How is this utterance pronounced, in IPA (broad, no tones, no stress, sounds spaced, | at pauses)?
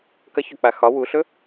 k ɐ ç ɵ k͡p a x ɒ w u ɬ ɵ